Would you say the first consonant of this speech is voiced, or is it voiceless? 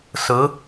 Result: voiceless